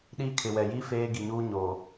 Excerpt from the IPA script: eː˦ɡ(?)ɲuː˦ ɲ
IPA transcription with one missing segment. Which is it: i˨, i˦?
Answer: i˨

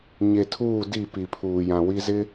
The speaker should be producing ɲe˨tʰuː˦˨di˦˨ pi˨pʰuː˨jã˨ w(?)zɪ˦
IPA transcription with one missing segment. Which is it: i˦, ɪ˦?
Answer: i˦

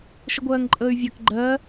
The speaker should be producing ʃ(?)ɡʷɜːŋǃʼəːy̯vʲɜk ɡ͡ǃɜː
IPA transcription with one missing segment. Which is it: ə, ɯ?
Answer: ə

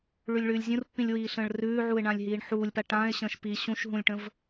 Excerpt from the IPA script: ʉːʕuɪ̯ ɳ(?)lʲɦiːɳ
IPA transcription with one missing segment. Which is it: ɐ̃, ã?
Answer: ã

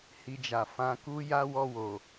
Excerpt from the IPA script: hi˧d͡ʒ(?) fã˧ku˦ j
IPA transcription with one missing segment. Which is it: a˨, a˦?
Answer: a˨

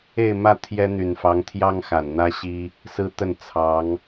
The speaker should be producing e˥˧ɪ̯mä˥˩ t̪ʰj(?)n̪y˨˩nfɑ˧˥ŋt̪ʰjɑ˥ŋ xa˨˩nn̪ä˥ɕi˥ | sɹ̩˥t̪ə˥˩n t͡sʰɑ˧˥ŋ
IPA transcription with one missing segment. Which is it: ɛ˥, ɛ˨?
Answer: ɛ˥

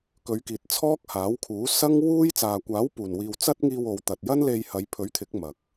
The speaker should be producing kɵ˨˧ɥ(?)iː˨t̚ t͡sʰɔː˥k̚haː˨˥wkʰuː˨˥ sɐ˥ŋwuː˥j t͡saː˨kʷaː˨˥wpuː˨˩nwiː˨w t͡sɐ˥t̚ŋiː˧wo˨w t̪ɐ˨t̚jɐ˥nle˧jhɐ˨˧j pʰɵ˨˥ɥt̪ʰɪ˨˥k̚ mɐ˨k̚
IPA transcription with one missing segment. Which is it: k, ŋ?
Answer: k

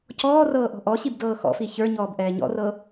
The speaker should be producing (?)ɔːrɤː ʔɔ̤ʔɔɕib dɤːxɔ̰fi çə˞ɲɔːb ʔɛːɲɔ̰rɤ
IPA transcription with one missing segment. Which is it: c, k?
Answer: c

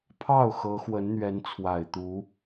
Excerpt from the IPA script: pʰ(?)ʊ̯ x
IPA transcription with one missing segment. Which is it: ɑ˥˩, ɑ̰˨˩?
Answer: ɑ˥˩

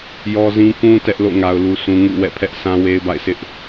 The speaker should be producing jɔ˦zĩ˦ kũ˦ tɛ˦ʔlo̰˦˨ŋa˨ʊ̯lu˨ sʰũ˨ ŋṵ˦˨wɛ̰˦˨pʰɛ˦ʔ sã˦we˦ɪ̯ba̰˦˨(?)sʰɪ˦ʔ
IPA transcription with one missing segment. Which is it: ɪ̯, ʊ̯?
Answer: ɪ̯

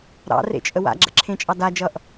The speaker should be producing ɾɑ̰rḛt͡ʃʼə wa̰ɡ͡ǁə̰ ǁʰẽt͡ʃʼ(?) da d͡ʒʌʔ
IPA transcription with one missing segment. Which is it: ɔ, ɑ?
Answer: ɑ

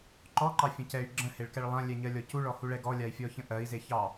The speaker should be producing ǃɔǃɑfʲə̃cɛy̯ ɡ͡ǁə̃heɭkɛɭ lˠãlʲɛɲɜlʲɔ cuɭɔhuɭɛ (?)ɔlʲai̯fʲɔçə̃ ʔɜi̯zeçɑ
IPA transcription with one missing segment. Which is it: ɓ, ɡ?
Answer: ɡ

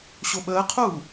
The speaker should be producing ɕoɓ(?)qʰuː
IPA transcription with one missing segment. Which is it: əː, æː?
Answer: əː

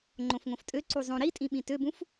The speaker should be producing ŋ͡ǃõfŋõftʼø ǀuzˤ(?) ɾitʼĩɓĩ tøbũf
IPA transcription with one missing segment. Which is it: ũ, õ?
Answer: õ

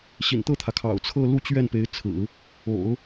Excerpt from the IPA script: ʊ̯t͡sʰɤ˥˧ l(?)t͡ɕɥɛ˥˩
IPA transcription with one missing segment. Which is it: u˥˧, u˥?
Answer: u˥˧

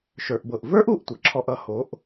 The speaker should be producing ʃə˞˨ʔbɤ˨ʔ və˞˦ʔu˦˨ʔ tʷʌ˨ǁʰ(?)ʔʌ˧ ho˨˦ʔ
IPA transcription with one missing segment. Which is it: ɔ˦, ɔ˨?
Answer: ɔ˦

